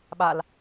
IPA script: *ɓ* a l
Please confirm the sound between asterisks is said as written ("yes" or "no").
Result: yes